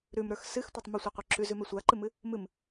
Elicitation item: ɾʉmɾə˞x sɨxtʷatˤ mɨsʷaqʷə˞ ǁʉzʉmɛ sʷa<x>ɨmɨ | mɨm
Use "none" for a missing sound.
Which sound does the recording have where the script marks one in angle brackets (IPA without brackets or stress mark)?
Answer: ǃ